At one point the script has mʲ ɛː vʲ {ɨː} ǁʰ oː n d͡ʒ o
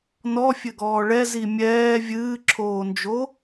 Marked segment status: correct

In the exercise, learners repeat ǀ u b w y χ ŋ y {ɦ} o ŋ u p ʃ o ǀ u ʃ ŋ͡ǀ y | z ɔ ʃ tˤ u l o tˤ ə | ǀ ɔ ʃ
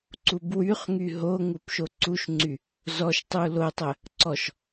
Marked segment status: correct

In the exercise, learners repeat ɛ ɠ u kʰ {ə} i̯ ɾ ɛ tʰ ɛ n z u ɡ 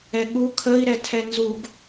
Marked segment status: correct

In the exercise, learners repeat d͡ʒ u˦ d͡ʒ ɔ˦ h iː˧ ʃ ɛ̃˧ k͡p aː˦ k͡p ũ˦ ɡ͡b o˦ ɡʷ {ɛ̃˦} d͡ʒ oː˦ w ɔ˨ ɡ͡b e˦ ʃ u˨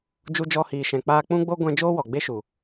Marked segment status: correct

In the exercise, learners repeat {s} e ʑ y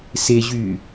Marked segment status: correct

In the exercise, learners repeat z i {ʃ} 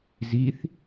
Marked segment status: incorrect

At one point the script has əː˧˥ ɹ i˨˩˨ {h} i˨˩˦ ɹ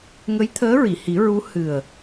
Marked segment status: correct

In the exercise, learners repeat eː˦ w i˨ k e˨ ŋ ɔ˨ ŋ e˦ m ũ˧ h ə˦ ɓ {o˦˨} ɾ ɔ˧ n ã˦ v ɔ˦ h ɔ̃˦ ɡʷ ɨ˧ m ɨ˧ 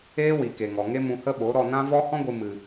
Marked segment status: incorrect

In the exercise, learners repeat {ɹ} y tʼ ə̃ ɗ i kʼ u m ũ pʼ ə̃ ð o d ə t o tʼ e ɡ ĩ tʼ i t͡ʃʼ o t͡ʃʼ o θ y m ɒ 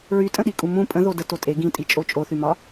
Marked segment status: correct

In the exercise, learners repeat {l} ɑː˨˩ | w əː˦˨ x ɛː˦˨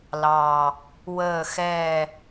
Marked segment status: correct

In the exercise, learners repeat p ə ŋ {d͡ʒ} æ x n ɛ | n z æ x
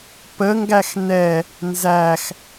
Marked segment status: incorrect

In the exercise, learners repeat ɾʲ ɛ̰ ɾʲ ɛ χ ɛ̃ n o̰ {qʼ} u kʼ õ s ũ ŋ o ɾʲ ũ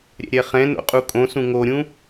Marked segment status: correct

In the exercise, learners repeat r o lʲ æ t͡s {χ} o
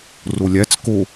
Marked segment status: incorrect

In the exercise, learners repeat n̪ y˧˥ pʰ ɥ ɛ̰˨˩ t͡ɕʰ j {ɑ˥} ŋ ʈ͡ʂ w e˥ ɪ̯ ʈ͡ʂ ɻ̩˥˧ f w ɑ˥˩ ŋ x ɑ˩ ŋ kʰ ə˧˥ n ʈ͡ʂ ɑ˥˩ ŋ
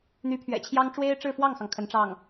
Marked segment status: correct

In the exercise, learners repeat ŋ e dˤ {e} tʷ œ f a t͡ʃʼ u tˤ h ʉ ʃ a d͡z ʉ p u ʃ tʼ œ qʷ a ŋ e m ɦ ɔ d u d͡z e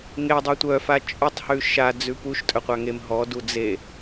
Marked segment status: correct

